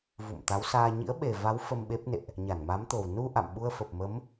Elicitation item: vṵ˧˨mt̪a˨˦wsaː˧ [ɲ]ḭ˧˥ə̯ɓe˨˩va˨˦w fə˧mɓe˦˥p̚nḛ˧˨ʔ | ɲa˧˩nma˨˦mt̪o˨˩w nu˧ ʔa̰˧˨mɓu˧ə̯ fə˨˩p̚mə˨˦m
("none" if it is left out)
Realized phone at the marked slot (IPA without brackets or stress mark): ɲ